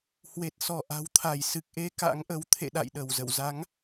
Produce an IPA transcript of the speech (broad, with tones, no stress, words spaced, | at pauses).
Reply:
hwe˨˩t̚sɔ˧˩ ʔa̤˨˩wt̪ʰa˧˩j sɨ˨˩k̚ʔe˧ ka̰˧˥ŋʔə˨˦w t̪ʰḛ˧˨ɗa̰˧˨j ɗə˧˩wzə̰˧˨w za˨˦ŋ